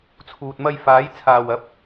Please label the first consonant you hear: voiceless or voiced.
voiceless